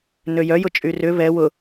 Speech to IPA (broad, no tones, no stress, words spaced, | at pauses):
nøjœ jʊt͡ʃʼyrʏ βɛ wʊ